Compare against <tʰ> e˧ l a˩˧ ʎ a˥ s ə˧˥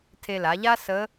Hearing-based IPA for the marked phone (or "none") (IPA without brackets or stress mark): tʰ